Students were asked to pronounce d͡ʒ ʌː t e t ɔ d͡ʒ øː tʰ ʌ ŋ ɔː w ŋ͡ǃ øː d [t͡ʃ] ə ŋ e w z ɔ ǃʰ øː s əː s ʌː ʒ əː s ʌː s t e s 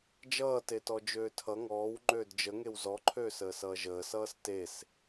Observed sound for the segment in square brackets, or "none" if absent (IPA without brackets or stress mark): d͡ʒ